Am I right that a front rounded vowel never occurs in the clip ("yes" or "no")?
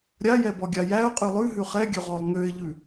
no